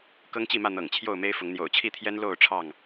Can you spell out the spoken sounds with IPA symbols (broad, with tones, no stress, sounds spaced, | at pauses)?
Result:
k ɤ˦ ŋ t͡ɕ i˥˨ m ä˥˨ n̪ ɤ̰˨˩ ŋ t͡ɕʰ j o˥˨ ʊ̯ m e˦ ɪ̯ f ʊ˨˦ ŋ n̪ j o̰˨˩ ʊ̯ t͡ɕʰ i˥˨ t̪ʰ j ɛ˦ n l o˥˨ ʊ̯ ʈ͡ʂʰ ɑ˥˨ ŋ